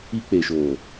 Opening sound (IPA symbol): i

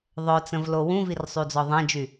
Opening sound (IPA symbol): ðˤ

